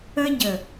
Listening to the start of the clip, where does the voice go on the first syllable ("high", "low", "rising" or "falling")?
high